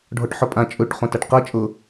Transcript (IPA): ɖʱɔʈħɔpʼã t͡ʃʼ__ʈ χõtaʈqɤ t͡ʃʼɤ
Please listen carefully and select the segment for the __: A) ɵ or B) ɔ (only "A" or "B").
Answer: A